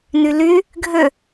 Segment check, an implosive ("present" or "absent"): absent